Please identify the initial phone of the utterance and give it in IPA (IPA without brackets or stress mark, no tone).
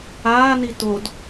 aː